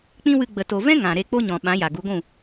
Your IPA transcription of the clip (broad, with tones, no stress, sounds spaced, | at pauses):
k͡p ĩ˦ w ɨ˧ ɡ͡b ə˨ t o˨ v ɛ̃˦ ŋ ã˨ ɾ e˧ k͡p o˦ ɲ ɔ̃˨ ɓ ã˨˦ j a˨ ɡ u˨˦ ɡʷ ũ˦˨